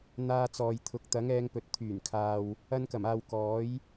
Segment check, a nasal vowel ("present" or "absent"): absent